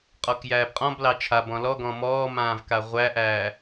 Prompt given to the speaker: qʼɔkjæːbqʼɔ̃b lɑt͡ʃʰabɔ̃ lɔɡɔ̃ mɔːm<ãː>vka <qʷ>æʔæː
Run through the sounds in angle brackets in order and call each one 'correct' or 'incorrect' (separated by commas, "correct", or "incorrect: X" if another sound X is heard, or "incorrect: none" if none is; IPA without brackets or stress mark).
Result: correct, incorrect: ʁʷ